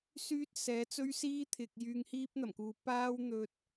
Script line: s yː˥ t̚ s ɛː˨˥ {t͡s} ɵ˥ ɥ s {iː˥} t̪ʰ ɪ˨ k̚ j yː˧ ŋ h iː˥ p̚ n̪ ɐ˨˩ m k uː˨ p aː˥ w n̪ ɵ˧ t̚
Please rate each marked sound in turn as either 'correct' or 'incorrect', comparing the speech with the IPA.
correct, correct

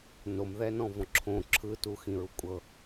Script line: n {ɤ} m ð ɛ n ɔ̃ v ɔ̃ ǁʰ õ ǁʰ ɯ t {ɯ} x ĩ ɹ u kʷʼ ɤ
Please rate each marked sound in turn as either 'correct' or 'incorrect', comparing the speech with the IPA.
incorrect: o, incorrect: u

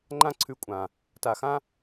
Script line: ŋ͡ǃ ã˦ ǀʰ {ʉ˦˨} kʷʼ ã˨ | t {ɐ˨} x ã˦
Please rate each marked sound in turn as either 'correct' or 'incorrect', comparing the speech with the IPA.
incorrect: ʉ˧, incorrect: a˨

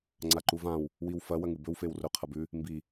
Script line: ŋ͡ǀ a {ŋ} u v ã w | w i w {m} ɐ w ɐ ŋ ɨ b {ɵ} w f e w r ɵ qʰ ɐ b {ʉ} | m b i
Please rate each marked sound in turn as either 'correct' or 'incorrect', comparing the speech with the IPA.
incorrect: ǃ, incorrect: f, correct, correct

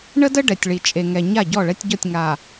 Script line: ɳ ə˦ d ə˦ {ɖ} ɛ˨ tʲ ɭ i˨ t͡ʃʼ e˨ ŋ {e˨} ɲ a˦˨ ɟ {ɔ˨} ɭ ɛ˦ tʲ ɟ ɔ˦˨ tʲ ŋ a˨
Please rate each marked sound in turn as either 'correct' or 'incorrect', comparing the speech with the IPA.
correct, incorrect: ɛ˨, incorrect: ɔ˦˨

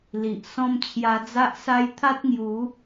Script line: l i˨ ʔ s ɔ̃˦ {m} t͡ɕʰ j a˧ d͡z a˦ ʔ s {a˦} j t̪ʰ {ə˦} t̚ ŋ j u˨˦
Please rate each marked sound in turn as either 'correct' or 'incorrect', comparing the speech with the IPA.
correct, correct, incorrect: a˦

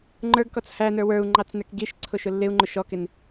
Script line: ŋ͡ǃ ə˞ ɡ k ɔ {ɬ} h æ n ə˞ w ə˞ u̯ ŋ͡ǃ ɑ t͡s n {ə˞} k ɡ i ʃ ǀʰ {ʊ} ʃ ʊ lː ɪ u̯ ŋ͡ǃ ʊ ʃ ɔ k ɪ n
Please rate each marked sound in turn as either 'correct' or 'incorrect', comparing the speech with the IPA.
incorrect: t͡s, correct, correct

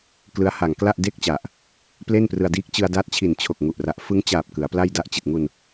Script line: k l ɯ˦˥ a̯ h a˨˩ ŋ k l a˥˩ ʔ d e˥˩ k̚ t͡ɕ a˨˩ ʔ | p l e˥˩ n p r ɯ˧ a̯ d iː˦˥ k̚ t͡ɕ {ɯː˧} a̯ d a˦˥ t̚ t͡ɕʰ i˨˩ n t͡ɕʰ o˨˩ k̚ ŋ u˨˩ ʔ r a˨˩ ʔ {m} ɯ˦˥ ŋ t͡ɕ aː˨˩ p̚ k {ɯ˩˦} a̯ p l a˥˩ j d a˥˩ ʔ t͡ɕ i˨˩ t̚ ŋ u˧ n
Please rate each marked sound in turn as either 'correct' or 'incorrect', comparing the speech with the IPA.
incorrect: ɯ˧, incorrect: f, correct

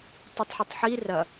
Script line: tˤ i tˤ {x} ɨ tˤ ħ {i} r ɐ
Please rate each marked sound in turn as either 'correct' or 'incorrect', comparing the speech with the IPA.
incorrect: ħ, correct

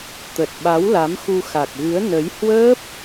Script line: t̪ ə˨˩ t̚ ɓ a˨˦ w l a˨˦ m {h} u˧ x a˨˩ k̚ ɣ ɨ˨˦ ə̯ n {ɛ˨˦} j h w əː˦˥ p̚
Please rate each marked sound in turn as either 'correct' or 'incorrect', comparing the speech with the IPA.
incorrect: x, incorrect: ə˨˦

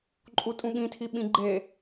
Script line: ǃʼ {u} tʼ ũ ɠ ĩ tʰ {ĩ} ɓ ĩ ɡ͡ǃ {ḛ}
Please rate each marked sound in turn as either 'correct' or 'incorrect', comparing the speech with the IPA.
correct, incorrect: i, incorrect: e

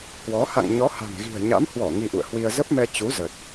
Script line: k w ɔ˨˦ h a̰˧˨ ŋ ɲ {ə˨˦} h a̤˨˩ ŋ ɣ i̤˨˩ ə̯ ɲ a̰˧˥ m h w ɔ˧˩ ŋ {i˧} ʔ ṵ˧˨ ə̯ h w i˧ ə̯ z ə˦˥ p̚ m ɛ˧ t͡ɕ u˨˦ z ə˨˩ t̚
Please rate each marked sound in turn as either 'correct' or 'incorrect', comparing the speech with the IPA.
incorrect: ɔ˨˦, correct

